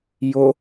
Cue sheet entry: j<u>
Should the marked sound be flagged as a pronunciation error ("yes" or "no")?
yes